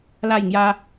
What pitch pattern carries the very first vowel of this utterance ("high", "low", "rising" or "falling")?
falling